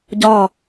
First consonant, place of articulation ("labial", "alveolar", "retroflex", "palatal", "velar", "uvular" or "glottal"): palatal